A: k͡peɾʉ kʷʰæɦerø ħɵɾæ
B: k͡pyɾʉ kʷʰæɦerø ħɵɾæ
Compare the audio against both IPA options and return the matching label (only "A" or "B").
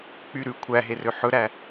B